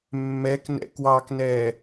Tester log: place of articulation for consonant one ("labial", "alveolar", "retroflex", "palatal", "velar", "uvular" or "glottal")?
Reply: labial